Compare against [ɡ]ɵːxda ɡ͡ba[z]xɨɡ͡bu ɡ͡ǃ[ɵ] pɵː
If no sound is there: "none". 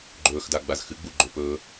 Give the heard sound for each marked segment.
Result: ɡ͡ǃ, z, ɵ

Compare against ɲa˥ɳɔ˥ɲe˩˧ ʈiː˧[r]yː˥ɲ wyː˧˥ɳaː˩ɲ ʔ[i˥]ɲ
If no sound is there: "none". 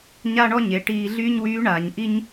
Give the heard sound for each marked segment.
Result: ɮ, i˥

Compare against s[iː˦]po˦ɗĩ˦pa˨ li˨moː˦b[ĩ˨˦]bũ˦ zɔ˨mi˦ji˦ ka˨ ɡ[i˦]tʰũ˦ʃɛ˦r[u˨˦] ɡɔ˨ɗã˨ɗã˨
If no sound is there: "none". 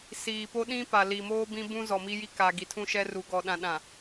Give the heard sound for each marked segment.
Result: iː˨, ĩ˦, i˨, u˨˦

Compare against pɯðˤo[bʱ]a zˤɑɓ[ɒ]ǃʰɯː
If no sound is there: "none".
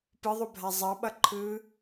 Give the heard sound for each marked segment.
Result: bʱ, ʌ

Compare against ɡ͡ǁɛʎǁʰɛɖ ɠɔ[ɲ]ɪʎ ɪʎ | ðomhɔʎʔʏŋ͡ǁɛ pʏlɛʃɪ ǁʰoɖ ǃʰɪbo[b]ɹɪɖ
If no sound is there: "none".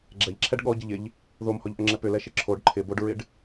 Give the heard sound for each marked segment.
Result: ɟ, ɖ

